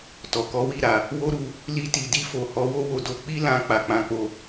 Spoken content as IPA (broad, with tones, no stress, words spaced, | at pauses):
tɔ˨kɔ˨˦wi˦˨ ɾa˨ | wo˦ɾu˧ | li˧ti˨di˧fo˨ hɔ˨˦wo˦wo˧do˧ k͡pi˦lã˧ k͡pa˨k͡pã˧k͡po˧